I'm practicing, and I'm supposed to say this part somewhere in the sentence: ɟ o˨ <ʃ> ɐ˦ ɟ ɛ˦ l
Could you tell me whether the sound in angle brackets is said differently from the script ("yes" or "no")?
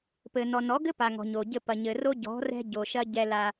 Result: no